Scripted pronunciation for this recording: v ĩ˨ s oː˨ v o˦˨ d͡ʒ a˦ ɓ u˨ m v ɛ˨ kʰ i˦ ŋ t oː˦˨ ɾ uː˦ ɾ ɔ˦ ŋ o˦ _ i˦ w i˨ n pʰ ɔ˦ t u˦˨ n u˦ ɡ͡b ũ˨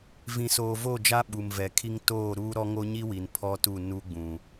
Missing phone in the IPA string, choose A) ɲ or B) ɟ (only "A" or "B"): A